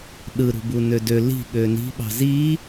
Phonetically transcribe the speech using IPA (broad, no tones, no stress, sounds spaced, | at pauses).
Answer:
ɗ ɯ ɾ ṳ b u n ø d ø l i̤ ɠ ø n i̤ ɓ ɑ̤ z i